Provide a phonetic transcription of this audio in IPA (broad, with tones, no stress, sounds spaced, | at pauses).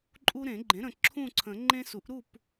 ǃʼ u˦ ɾ ẽ˨˩˦ ɡ͡ǃ ẽ˩˥ ɾ ə̃˨ ǁʰ ũ˥˨ ǀʰ ə̃˨˩˦ ŋ͡ǃ ẽ˦ s u˩˥ ʔ ɾ u˥˨ p